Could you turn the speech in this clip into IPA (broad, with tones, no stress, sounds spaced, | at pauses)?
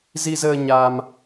z i˧ z əː˧ ɲ a˧ m